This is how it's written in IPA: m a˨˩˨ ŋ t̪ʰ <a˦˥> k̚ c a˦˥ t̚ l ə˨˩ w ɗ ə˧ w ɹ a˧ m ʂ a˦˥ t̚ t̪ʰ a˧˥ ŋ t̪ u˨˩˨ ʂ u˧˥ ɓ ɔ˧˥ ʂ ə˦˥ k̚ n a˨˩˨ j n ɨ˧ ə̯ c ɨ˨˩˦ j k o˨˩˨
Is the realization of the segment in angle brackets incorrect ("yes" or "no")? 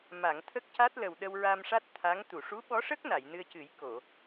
yes